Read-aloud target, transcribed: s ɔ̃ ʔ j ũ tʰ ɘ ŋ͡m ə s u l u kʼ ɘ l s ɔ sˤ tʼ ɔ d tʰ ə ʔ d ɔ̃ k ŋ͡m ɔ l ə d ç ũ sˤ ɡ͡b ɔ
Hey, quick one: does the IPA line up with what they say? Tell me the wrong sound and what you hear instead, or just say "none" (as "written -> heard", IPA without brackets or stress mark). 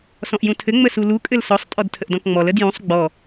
ç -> j